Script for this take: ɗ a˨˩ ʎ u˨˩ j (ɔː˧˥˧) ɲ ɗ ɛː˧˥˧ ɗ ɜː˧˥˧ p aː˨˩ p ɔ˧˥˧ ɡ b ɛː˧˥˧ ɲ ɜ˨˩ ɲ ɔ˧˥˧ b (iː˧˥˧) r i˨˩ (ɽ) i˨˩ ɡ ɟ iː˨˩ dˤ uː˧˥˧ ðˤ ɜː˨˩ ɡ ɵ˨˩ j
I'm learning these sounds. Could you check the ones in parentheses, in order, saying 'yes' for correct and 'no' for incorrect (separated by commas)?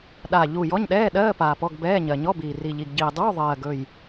no, no, no